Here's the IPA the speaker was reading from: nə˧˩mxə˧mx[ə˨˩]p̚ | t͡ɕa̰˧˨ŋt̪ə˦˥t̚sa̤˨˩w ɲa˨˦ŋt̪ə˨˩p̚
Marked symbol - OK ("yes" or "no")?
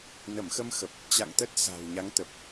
yes